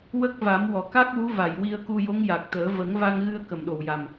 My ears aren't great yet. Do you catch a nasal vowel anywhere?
no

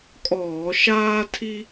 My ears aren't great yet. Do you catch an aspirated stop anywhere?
yes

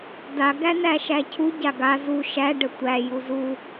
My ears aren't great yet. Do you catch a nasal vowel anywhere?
no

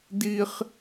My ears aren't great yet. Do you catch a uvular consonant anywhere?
yes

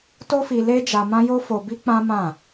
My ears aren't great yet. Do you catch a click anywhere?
no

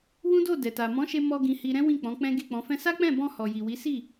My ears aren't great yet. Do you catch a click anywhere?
no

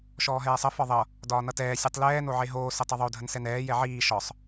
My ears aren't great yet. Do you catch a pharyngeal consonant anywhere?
yes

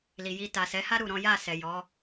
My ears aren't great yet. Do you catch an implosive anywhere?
no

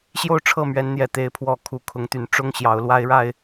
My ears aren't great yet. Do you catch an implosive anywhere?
no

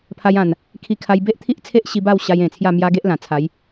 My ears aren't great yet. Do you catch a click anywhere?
no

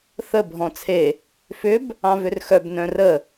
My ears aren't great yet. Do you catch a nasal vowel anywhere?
yes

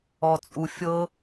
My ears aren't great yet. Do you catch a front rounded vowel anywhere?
no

